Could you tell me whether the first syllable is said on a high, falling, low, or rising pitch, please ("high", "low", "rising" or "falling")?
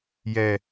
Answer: low